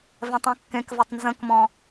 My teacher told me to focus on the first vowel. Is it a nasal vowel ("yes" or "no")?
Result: yes